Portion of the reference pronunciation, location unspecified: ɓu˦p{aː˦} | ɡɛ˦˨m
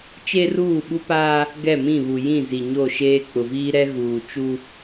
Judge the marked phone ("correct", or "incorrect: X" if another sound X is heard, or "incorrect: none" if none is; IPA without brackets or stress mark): correct